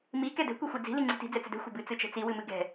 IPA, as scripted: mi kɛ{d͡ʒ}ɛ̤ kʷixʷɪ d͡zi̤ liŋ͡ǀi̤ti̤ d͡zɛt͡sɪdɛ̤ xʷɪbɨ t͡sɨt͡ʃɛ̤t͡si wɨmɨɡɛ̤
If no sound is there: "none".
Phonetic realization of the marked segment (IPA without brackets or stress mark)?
d